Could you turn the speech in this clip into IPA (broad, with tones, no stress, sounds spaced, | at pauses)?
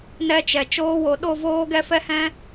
n ɛ˦ t͡ʃ ɛ˨ t͡ʃ oː˧ w o˨ ɗ o˦˨ v oː˦ ɡ ɛ˦ f ɛ˦ h ɛ̃˦